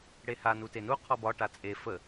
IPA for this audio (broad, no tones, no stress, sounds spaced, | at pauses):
ɽ e h a n u t e n u qʰ ɔ b ɒ ʈ a t͡sʼ e f ə